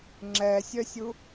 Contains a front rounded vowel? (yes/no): yes